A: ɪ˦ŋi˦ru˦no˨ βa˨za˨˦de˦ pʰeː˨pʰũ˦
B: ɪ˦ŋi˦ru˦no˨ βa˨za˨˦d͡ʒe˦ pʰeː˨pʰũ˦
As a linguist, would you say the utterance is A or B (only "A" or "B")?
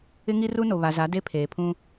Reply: A